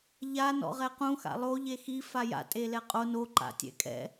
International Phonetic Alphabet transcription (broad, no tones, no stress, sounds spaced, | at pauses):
ʎ a n ɔ̰ ʁ ɛ q ũ x a̰ lˠ o ʎ e x i f a j a̰ tʼ e l ɛ qʼ o n o ǃ a̰ tʲ ɛ̰ kʼ ɛ̰